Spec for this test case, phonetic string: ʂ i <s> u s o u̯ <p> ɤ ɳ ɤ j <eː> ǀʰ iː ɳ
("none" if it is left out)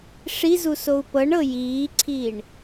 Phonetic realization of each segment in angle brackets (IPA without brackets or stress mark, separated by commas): z, p, iː